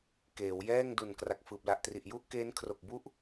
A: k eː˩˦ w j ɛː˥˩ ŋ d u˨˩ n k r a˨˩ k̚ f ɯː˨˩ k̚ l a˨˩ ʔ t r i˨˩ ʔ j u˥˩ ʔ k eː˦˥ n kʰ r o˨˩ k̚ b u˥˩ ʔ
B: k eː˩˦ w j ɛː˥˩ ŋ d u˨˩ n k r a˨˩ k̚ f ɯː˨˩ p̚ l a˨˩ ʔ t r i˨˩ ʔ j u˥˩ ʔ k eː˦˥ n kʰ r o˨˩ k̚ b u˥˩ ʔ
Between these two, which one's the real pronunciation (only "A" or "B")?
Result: B